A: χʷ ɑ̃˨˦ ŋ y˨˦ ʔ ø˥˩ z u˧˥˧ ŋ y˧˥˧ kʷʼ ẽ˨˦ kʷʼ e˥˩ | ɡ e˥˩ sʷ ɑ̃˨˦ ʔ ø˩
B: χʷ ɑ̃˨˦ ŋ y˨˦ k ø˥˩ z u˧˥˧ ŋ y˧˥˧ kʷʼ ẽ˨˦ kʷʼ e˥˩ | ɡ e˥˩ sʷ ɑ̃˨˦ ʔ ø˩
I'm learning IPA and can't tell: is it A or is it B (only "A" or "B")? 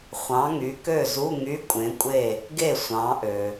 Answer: B